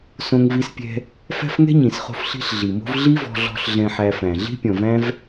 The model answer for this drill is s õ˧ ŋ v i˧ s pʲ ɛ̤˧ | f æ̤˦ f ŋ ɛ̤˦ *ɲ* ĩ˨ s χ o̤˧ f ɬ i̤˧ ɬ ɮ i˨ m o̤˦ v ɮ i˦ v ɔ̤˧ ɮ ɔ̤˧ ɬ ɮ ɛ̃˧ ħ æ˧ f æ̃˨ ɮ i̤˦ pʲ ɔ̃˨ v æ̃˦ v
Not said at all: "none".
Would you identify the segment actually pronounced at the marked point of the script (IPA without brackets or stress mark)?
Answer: ɲ